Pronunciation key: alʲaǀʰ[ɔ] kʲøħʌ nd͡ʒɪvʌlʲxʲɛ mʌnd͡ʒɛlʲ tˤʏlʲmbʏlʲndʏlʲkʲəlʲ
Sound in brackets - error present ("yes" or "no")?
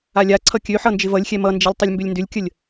yes